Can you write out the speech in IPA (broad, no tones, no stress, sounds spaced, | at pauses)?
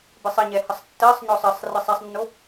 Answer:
b ɨ sˤ ə ɲ ɛ h ə sˤ tː ɜ sˤ ɲ ɔ sˤ ə sˤ r ɨ sˤ ɛ sˤ nː o